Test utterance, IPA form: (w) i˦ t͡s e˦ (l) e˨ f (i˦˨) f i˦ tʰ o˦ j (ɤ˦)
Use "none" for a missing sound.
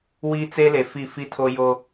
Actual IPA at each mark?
w, l, i˦˨, o˦

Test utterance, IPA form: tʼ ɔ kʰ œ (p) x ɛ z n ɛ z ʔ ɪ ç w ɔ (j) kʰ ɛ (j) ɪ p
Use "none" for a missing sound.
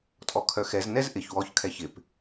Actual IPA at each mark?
none, ç, ç

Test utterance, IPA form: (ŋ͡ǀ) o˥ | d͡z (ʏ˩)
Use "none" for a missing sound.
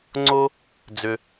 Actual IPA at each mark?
ŋ͡ǀ, ʏ˩

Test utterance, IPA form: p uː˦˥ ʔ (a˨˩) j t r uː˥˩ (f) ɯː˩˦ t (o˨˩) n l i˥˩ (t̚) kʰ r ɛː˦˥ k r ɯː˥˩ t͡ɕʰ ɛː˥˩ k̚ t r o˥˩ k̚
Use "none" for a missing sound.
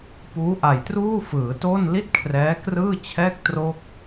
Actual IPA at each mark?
a˨˩, f, o˥˩, t̚

